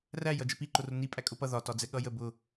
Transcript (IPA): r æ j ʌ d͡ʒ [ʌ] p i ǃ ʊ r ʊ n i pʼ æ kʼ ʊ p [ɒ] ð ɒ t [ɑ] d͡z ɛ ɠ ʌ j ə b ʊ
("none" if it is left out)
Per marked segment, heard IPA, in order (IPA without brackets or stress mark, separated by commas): ə, ʌ, ɒ